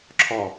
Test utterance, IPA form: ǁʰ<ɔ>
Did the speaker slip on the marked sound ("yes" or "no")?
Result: no